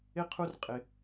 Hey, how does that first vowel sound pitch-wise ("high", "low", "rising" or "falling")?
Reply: high